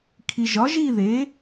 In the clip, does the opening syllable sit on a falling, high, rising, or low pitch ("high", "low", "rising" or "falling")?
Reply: low